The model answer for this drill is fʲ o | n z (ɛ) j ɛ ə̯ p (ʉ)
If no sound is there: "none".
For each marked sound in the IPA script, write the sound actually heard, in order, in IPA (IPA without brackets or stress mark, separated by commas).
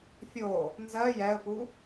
ɜ, u